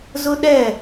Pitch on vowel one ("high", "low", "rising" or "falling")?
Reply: high